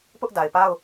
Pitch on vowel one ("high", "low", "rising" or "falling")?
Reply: high